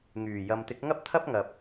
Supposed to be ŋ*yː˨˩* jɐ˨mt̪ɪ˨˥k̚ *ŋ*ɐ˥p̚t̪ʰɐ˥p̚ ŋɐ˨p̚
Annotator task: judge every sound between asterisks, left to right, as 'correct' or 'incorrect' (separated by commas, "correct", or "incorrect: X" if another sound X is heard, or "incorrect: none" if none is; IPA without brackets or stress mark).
correct, correct